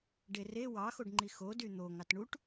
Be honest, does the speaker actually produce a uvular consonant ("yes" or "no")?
no